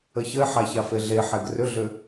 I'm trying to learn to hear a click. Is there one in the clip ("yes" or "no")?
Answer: no